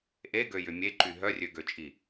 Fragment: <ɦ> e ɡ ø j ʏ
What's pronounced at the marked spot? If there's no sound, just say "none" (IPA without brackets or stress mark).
ʔ